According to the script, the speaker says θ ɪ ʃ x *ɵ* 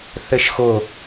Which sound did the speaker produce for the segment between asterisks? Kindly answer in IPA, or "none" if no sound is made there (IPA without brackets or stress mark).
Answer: ʊ